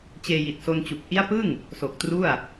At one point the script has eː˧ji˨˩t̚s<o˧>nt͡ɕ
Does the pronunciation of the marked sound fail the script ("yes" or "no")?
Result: no